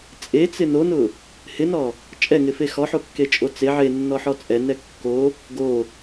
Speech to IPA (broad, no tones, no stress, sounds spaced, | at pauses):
t͡sʼ e t͡s ɪ n o n ʊ | h ɪ n ɔ | t͡ʃʼ ɛ ŋ ɪ f e x ɔ ħ o kː e t͡ʃʼ o t͡s e ʕ e nː ɔ ħ ɔ t͡sʼ ɛ n ɛ kː o | ɡ o